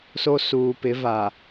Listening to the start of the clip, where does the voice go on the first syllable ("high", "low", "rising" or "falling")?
high